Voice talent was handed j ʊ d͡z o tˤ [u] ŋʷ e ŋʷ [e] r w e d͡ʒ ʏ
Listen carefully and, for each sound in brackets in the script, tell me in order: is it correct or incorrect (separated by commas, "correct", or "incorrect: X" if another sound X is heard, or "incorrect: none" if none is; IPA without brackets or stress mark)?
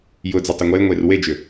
incorrect: ʏ, correct